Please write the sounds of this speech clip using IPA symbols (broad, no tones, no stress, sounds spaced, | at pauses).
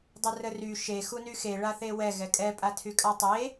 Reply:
dˤ ə r ə r y ʃ e x u n y x e ɭ a θ e w ɛ ɣ ɛ kʼ ɛ pʼ a tʰ y kʼ a tˤ e